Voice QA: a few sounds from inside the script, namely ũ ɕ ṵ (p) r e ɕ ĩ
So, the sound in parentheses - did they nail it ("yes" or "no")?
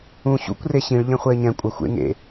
no